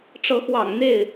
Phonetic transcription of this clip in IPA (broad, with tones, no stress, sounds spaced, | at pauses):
ʈ͡ʂ ɤ˨˦ x w ɑ̰˨˩ ŋ n̪ e˥˨ ɪ̯